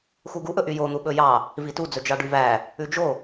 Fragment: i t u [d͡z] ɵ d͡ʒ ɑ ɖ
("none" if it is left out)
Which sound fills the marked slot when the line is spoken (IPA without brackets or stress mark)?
d͡z